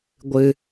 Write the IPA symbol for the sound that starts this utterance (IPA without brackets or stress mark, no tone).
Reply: ɡʷ